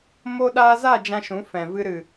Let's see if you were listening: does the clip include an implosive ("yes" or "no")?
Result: yes